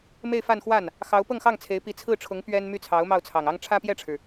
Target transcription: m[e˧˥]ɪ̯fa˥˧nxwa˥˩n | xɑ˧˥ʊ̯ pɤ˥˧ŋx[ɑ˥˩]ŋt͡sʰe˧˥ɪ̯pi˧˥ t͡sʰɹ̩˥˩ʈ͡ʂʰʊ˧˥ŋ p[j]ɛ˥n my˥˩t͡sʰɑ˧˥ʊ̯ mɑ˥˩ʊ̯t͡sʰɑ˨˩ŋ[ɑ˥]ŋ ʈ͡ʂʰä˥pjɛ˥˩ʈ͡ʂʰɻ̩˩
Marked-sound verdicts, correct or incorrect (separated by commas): incorrect, correct, incorrect, correct